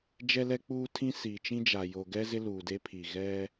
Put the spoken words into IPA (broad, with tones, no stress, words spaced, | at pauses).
d͡ʒɛ˦lɛ˦k͡puː˦tʰĩ˦ siː˨t͡ʃĩ˦d͡ʒa˨ jo˨ɡɛ˦ zɪ˦luː˨de˦pʰi˨ ɣɛ˦